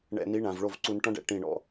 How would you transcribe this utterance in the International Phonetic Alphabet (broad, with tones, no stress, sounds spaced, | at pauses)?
ɳ ɛ̰˨ n i˨˦ ɳ ã˨ v ɭ o˦˨ v ǀ u˧ n ʈ ɔ̃˦ ɖ ɛ̰˧ ʈ ĩ˦˨ ɳ ɔ̰˦